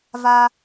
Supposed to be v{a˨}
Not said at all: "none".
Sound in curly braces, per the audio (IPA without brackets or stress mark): a˨